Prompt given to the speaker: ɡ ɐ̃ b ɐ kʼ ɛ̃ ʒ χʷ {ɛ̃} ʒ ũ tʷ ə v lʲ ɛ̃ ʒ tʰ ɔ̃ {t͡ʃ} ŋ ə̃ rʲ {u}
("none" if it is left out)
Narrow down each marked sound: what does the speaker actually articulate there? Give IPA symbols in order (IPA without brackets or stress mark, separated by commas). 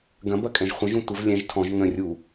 ə̃, ʒ, u